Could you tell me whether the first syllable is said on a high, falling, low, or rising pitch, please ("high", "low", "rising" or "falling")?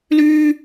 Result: high